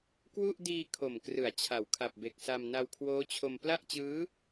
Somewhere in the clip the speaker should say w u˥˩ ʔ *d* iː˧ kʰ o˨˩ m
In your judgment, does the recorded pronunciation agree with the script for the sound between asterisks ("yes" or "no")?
yes